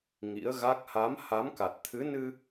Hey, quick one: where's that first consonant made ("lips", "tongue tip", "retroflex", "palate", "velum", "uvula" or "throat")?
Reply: velum